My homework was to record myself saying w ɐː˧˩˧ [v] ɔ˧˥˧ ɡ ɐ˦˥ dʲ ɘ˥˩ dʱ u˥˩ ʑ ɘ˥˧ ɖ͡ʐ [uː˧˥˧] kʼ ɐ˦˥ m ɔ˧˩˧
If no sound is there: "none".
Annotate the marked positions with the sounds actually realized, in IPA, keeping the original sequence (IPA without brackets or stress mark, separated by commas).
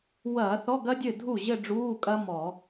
θ, uː˧˥˧